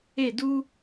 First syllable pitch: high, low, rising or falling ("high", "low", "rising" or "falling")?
falling